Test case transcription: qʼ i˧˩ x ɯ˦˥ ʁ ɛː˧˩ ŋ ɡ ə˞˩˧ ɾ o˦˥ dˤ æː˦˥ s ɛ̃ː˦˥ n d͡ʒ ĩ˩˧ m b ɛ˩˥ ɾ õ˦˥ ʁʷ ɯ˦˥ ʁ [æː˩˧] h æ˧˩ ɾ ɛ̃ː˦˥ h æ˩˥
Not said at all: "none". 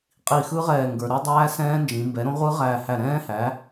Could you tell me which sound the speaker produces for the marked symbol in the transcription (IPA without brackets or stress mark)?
æː˧˩